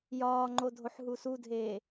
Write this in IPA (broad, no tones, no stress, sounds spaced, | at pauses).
j ɒː ŋ͡ǃ o dʱ o ħ ɦ u s u dʱ eː